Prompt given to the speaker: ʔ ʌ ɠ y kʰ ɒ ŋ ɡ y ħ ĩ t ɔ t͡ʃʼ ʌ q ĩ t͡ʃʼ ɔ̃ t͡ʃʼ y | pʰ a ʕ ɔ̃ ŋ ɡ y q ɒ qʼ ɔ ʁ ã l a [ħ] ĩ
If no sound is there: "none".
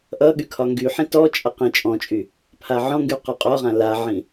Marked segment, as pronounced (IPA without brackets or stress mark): ʕ